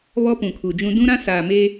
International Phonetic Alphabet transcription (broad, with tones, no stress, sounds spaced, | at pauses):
β ɔ˦ p ũ˨ kʰ u˨ d͡ʒ ũ˦ d ũ˦ ɾ ã˦ s aː˨ m eː˦